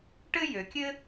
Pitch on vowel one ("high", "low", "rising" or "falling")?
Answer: high